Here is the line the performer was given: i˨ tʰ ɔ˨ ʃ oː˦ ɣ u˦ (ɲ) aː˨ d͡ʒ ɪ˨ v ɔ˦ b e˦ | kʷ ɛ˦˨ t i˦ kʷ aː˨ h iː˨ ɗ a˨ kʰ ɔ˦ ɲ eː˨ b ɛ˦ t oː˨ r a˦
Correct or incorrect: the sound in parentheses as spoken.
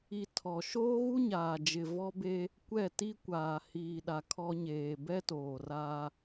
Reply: correct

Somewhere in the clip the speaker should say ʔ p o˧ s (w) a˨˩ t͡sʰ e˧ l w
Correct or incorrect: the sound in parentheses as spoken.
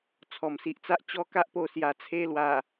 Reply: incorrect: j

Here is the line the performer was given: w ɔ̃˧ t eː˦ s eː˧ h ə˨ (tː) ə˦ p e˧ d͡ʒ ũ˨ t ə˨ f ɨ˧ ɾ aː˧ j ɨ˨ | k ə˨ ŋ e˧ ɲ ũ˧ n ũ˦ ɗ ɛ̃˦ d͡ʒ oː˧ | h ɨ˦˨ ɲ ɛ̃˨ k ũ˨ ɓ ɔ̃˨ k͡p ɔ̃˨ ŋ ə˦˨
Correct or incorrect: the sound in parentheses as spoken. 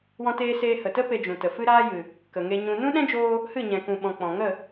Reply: incorrect: t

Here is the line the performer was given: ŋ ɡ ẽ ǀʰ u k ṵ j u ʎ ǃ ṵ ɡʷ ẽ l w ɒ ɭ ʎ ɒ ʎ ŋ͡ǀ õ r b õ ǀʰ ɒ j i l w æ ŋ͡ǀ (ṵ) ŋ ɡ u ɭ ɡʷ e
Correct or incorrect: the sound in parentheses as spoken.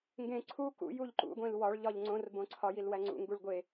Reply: correct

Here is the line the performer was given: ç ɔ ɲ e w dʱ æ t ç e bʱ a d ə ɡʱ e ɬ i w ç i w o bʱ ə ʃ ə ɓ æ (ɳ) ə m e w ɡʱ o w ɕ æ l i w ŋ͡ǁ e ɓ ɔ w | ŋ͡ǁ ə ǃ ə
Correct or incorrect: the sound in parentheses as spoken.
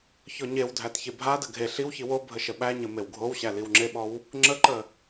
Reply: incorrect: ɲ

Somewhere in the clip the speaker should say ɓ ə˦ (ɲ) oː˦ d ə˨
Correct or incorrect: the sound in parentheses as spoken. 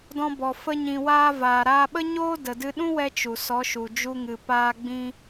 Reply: correct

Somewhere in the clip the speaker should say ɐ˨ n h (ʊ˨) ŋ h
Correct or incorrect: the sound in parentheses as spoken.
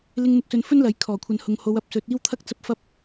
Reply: correct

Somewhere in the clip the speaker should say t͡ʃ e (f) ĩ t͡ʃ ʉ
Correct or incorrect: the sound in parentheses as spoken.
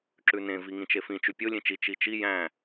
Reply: correct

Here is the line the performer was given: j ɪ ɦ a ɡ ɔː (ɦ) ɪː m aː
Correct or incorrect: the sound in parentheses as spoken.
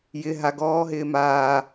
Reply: correct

